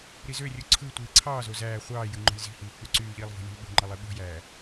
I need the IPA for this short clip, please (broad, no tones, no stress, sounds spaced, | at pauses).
ɾ i z ø rʲ u ǀʰ ɯ tʷ iː ǀʰ ɑː z o z æː χʷ ɑː j ɯ ŋ͡ǃ o̤ lʲ z i̤ h iː k͡p y ǀ yː ʎ iː lˠ v o̤ lʲ ṳ lʲ ɓ ṳ ŋ͡ǃ ɑ lˠ i ɓ o̤ j æː